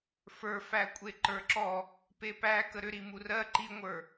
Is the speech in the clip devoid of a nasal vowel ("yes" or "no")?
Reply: yes